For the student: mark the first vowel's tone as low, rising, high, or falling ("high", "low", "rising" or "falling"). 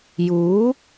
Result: rising